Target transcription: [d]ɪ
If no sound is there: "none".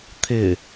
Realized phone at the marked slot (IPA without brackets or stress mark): t̪ʰ